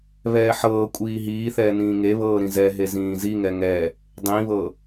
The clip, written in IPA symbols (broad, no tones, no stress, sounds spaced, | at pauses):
β ɛː ħ ɤː kʷʼ iː ɦ iː θ ɛː n ĩː ŋ e β ɤː ɾ ĩ z ɛ ɦ e z ĩː z i ŋ ɛ ŋ ɛ | dˤ ĩ β ɤ